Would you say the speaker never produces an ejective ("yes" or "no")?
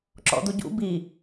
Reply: yes